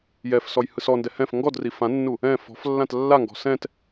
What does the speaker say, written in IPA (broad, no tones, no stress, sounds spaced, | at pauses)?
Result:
j ɛ f s ɔ j h ɯ s ɔ n d ɛ h ɛ̃ f ŋ ɡ ɔ d r i f ã nː u | ɛ̃ f ɔ̤ f lː ã t lː a ŋ ɡ ɔ̤ s ɛ̃ t